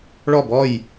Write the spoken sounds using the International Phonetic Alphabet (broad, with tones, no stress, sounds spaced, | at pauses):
ɭ ɔ˦˨ b ɔ˦˨ j